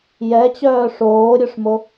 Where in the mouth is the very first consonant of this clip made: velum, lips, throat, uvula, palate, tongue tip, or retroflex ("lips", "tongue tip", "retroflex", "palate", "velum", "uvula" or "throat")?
palate